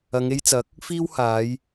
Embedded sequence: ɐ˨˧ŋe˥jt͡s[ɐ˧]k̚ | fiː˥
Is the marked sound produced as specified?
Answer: no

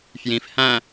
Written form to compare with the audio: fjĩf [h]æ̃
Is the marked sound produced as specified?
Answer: yes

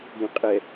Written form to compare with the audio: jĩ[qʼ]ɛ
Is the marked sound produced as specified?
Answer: yes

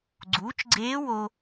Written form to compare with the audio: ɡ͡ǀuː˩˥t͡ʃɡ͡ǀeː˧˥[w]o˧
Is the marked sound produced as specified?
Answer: yes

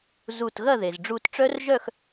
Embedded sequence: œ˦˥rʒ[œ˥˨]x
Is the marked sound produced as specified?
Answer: yes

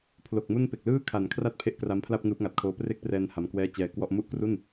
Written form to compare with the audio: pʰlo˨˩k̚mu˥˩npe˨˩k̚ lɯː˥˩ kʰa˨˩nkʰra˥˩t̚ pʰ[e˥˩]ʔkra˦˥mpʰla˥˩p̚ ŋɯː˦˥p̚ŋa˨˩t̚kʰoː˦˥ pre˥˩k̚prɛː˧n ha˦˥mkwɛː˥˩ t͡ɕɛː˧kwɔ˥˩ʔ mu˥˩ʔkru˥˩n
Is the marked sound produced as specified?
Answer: yes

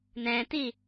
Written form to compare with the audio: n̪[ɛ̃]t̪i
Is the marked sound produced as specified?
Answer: yes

